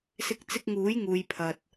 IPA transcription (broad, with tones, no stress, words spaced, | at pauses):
sɪ˧k̚t͡sɪ˧k̚ ŋuː˨˥jŋuː˨jpʰɐ˨t̚